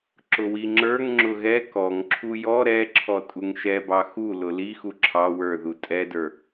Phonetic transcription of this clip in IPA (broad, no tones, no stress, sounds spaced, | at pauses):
ǁ ʊ w i ŋ͡ǁ ə˞ ŋ ŋ͡ǁ ʊ ɣ ɛ k ɔ ŋ ǁʰ u j ɔ ɾ ɛ ǁʰ ɔ tʼ u ŋ ʃ ɛ b ɑ x u l ʊ l i x u ǁʰ ɑ w ə˞ ð u tʼ ɛ d ə˞